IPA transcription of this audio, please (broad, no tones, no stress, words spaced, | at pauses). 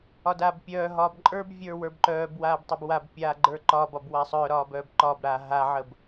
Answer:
ɒdaːbpʲœːɦɒːb ǃʼə˞bvʲə˞ wə˞bǃœːbwaːb tˤəbwabpʲaː ɡ͡ǃə˞ǃɒbɒb wasˤœːɾɒːb œːbǃɒːbɾaː ɦaʕəb